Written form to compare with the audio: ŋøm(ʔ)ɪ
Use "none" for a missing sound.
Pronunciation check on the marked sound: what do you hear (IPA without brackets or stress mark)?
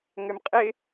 qʼ